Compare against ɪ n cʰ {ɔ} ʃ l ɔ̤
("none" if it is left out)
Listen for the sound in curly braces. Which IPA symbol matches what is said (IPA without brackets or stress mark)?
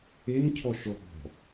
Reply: ɔ